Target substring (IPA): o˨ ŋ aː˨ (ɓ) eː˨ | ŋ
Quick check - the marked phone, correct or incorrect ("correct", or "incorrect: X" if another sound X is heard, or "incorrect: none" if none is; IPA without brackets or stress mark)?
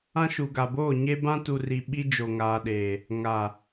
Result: incorrect: ɗ